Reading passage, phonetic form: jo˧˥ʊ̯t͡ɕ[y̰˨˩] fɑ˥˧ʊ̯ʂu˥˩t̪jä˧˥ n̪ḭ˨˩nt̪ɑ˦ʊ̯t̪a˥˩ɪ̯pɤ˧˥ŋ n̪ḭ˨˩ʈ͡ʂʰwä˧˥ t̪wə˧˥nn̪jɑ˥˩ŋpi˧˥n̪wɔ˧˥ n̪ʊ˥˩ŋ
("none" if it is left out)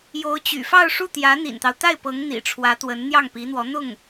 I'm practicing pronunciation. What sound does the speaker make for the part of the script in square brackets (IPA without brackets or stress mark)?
y̰˨˩